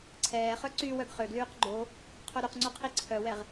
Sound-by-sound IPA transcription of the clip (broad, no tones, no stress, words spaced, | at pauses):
ǀʰɛːχœ ǀy wœɡχøɡlyːq ɡ͡ǃo | qʰoɾyqŋ͡ǀu qʰiǀʰœwɛʁ